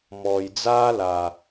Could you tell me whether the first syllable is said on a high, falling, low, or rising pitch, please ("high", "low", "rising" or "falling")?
low